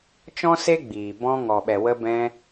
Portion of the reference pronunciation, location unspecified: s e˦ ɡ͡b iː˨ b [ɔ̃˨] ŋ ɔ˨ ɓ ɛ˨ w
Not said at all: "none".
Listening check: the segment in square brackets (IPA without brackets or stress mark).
ɔ̃˧